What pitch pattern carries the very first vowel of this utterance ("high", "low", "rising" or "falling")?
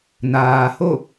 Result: low